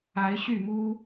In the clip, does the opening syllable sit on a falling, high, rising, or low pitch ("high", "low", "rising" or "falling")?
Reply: rising